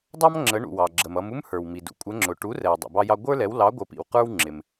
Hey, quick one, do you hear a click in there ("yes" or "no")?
yes